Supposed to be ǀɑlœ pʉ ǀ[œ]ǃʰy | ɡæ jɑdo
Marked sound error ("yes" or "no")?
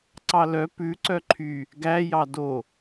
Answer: no